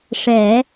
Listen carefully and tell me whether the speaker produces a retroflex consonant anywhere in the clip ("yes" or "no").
yes